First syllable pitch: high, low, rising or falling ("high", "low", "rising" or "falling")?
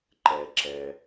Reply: low